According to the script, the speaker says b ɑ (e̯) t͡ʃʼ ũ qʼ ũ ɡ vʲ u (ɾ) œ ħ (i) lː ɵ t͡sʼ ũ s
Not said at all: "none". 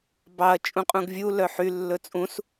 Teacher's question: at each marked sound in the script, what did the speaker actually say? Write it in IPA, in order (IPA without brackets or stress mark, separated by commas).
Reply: ɐ̯, l, y